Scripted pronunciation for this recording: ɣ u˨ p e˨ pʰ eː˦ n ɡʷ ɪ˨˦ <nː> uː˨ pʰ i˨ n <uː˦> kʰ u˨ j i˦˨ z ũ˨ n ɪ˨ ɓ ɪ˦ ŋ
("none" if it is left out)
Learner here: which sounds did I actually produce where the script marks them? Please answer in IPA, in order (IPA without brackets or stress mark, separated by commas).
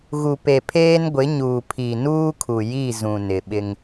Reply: ɲ, uː˦